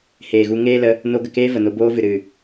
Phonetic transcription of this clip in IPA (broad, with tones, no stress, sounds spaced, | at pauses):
h eː˨ ɣ u˧ ŋ eː˦ l ə˧ | n o˧ ɡ ə˨ k eː˦ v ə˨ n o˧ b oː˦ v ɨ˨ ɾ ɨ˨